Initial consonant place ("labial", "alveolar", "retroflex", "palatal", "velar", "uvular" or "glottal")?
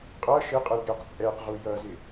uvular